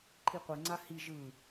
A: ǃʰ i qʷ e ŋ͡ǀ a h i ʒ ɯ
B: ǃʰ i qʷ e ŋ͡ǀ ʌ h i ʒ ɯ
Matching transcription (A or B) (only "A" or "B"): A